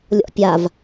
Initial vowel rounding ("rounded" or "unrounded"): rounded